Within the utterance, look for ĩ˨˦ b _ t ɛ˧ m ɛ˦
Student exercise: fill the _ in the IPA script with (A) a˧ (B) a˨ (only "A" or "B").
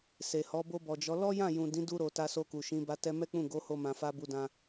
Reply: A